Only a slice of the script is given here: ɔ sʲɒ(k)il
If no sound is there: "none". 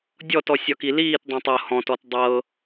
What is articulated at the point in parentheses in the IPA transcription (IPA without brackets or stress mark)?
k